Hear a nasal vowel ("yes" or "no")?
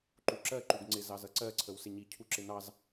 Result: no